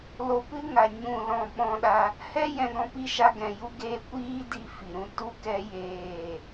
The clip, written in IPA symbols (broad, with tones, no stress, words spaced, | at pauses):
lo˧pɨ˦ŋa˨ ɲũ˦˨lɔ̃˦˨ɓɔ̃˦ɗa˦ | hɛ˦ jɛ̃˧ɡɔ̃˧pi˦ʃa˧ ɡɛ̃˨ju˦ɡeː˦ kʷiː˦ di˧ fi˨ɾũ˦ tu˦kɛ˦ jeː˦˨